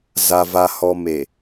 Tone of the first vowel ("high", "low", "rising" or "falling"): low